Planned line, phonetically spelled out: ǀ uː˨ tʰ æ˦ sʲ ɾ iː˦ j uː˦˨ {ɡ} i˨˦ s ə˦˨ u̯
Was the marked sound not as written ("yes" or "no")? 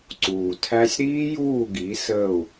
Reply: no